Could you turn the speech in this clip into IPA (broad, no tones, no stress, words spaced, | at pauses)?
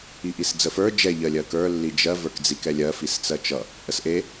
iʔisd͡zəfə˞ d͡ʒɛ ʎɜlʲɜkə˞ lːid͡ʒɜ və˞kd͡zikɛlʲɜ fist͡sɜt͡ʃʌ | ʔəsʔe